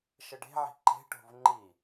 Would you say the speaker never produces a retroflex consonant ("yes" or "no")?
no